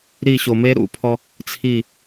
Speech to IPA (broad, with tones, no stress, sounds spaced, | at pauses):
ɾ i˦˨ ɕ o˨ m e˦ ɾ ṵ˨ pʰ ɔ˦ | t͡sʰ i˦˨